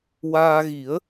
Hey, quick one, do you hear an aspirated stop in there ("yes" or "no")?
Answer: no